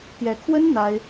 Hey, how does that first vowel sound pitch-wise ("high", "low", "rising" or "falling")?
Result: rising